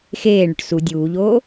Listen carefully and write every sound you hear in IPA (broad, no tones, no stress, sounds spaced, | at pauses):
x eː ɳ ʏ ʈ s u dʲ uː ʎ oː